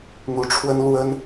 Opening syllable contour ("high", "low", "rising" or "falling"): rising